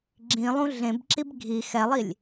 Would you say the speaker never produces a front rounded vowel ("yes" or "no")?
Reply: yes